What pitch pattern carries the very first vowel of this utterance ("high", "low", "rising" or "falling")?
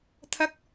high